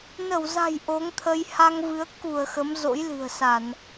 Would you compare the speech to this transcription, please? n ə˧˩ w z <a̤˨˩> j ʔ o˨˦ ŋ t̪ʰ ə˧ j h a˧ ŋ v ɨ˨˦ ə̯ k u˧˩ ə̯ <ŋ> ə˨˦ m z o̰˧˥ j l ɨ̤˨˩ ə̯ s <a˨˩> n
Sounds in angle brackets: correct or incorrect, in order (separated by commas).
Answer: correct, incorrect, incorrect